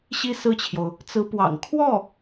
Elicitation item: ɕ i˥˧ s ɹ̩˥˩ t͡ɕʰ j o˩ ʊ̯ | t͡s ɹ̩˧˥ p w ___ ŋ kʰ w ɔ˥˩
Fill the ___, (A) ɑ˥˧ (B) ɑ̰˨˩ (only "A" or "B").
B